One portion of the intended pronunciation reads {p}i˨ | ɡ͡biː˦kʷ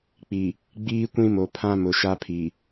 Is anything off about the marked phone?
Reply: yes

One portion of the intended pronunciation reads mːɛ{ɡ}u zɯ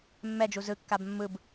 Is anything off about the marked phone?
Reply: yes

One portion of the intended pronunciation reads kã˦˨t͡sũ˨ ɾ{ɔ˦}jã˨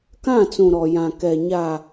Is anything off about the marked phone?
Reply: yes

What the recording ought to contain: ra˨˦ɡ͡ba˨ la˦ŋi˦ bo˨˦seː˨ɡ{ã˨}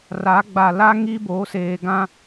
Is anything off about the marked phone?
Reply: yes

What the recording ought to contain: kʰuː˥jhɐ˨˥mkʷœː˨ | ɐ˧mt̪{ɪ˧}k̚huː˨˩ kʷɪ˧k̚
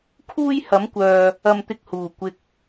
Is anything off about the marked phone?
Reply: no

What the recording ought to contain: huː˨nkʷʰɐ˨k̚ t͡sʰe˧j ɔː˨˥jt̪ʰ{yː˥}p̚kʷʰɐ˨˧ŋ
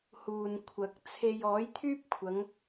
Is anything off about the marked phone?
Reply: no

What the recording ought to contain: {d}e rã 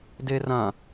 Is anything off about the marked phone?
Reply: no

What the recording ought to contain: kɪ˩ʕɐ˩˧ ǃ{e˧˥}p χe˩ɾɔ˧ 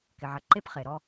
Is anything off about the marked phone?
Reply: yes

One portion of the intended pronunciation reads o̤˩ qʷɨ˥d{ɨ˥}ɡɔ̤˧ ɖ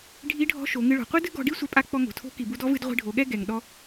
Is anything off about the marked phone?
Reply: no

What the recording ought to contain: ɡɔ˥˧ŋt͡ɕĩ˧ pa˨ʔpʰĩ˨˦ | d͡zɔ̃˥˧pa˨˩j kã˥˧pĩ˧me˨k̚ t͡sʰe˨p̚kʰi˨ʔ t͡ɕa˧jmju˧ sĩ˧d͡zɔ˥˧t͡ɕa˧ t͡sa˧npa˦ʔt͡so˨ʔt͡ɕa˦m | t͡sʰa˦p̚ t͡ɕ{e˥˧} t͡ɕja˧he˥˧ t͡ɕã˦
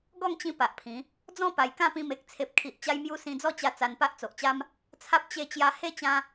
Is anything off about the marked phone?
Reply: no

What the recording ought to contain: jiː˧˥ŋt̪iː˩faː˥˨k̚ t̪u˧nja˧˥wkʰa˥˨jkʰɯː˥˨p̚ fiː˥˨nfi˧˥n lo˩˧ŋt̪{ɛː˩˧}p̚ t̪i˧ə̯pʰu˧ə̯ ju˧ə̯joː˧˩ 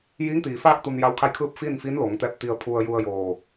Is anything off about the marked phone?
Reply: yes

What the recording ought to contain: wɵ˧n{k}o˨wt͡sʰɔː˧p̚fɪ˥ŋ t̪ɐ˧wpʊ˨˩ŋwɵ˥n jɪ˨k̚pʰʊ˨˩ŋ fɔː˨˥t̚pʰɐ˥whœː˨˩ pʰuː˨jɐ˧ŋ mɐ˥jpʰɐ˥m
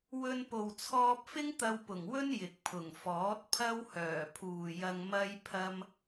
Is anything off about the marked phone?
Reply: yes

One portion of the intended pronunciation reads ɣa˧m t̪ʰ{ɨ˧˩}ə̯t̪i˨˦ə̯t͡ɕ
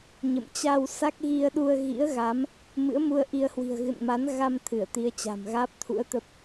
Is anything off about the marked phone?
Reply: no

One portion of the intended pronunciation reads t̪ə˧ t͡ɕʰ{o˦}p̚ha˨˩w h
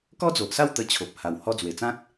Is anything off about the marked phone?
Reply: yes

